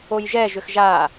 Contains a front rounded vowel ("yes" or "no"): yes